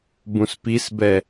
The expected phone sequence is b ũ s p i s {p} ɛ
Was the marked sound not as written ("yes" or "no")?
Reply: yes